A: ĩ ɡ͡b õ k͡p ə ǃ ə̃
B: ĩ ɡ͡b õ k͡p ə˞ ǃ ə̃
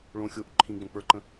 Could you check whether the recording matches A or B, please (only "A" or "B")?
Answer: B